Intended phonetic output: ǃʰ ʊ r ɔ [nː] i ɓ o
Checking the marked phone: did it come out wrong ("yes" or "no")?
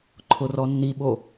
no